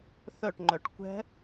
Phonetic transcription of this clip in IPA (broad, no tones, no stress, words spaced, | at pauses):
θœʈŋ͡ǃœʈ kʷɛ̤